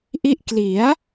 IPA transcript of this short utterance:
ʔ i˥˩ ʔ k l i˩˦ a̯

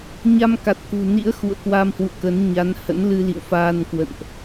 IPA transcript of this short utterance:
ɲ a˧ m k a˨˩ t̚ k ṳ˨˩ n ḭ˧˥ ə̯ x ṵ˧˨ ə̯ k w a˧ m h w ṵ˧˨ ə̯ k ə˨˦ n ɲ a˨˦ n h ə̰˧˥ n l ɨ˧ l ḭ˧˨ w f aː˧ n k w ə̰˧˨ n ʔ

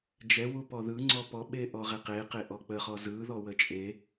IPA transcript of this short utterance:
d͡ʒ ɛ w u p ɔ ð ɯ ŋ͡ǀ ɔ p ɔ ɓ e ʔ ɔ ʁ e q e q e ʔ ɔ k͡p ə χ ɔ z ɯ ð ɔ w ə t͡ʃʼ e

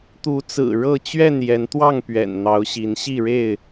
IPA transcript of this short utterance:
t̪ u˨˦ t͡s ɹ̩˨˩ ɻ ɤ˥˨ t͡ɕ ɥ ɛ˥˨ n j ɛ˨˦ n t̪ w ɑ˥˨ ŋ p ɥ ɛ̰˨˩ n n̪ ɑ˨˦ ʊ̯ ɕ i˨˦ n ɕ i˥˨ ɻ e˥˨ ɪ̯

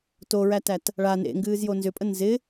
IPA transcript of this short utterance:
t o ɹ æ t æ t | ɭ a n ḛ ŋ ɡ ɨː z j o n z ʏ pʼ ə n z ɪ

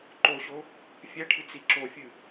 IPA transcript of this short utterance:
ǃ o ɕ o | fʲ ɛ ʈʰ ɨ t͡s i ǁ o fʲ ɨ

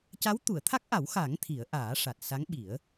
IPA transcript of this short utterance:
c a˧˥ w t̪ u˨˩˨ ə̯ t̪ʰ a˦˥ k̚ ʔ a˨˩˦ w x a˨˩˦ ŋ t̪ʰ i˨˩˦ ə̯ ʔ aː˨˩˦ ʂ a˨˩ t̚ s a˧˥ ŋ ɓ i˨˩˦ ə̯

